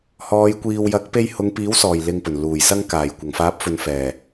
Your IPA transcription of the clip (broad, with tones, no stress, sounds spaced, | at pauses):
h ɔː˨˧ j kʷ iː˨ w j ɐ˨˥ k̚ p e˧ j h ʊ˨˧ ŋ p iː˨˥ w s ɔː˨˩ j l ɪ˧ ŋ p ɵ˨˩ n l uː˨˩ j s ɐ˧ ŋ k aː˨˩ j kʷ ɐ˨˩ ŋ f aː˨˥ p̚ f ɵ˨ n f ɛː˨˩